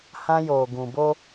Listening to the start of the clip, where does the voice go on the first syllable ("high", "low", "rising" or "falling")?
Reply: high